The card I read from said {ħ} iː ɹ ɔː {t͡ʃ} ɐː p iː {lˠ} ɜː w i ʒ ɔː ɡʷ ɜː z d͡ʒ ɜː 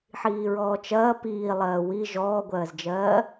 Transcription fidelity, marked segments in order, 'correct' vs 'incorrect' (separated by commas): correct, correct, correct